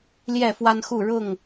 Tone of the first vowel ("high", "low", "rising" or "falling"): falling